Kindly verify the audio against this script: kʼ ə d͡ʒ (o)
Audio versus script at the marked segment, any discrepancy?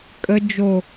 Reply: no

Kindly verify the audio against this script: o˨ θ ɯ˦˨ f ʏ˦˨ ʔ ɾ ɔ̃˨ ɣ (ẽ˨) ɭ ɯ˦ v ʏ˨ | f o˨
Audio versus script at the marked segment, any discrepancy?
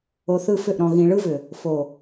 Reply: yes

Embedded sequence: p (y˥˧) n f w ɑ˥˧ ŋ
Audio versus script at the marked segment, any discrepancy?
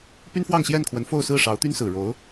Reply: yes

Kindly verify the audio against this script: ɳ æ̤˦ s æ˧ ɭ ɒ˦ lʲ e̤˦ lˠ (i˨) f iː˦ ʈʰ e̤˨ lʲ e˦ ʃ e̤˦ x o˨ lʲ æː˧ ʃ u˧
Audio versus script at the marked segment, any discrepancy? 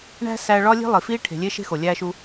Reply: no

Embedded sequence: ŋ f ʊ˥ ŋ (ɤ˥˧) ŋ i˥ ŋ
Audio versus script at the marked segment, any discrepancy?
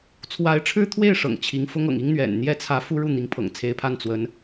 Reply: yes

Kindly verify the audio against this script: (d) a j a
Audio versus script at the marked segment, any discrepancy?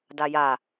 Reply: no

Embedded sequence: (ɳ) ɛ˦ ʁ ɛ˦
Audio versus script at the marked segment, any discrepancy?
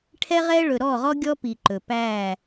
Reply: yes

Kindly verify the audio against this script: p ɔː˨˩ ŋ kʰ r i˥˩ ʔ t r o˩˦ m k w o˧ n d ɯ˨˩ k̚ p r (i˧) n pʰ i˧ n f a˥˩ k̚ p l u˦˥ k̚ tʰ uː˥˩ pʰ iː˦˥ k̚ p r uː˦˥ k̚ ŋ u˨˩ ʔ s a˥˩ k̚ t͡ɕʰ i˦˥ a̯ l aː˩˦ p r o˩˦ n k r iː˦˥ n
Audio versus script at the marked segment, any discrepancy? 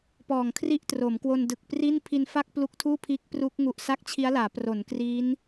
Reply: yes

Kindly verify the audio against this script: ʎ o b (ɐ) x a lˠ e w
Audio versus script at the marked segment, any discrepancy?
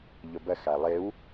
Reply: no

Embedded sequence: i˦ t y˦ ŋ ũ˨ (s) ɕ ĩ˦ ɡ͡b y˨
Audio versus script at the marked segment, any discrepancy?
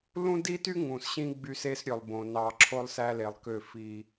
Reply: no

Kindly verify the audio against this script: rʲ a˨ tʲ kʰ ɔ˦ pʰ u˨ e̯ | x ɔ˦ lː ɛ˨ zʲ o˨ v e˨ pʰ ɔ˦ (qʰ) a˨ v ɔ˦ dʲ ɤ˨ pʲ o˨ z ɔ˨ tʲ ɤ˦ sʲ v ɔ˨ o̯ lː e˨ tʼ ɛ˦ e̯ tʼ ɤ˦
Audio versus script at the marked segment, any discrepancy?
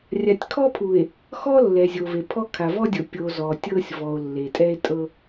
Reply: yes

